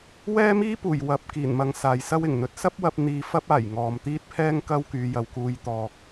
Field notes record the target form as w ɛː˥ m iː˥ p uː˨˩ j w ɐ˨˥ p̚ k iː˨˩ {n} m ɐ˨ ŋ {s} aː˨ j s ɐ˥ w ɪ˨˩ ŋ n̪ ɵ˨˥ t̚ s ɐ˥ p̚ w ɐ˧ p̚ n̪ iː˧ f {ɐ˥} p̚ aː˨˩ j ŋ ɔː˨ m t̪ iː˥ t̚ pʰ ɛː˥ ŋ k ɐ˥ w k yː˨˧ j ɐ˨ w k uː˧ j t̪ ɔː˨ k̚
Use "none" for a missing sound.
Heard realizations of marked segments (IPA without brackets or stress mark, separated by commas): n, s, ɐ˥